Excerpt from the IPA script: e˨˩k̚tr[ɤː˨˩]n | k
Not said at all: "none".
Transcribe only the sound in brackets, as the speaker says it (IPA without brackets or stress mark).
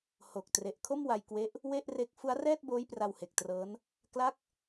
ɤː˦˥